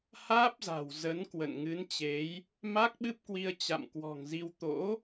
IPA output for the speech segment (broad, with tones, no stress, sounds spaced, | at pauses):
h aː˦˥ p̚ z a̤˨˩ w z ə˨˦ n k w ə̰˧˨ n ŋ ɨ˨˦ n t͡ɕ e˨˦ j | m a˦˥ k̚ ɓ ɨ˦˥ p̚ k w i˧ ə̯ t͡ɕ a̰˧˨ m k w ɔ̤˨˩ ŋ z i˧ w t̪ o̰˧˥